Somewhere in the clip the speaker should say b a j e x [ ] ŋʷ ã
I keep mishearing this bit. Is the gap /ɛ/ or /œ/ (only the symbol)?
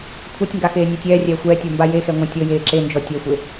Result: ɛ